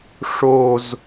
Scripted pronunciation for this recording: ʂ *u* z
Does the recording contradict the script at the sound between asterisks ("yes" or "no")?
yes